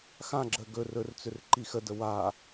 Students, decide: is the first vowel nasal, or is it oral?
nasal